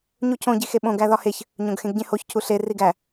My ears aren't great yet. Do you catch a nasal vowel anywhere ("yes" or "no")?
yes